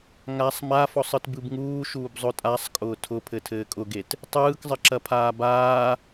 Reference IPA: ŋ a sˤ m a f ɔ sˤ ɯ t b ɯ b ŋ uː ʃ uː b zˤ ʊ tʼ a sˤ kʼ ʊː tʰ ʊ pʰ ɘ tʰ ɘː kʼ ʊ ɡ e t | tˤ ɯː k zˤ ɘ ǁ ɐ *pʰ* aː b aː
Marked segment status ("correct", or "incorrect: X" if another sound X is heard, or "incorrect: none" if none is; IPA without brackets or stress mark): correct